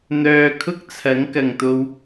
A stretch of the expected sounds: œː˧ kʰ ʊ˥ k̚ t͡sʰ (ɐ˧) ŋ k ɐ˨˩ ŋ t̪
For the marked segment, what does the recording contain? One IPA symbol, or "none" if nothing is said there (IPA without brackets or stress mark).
ɐ˨˥